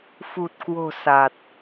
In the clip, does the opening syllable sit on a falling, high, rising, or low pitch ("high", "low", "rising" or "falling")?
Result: low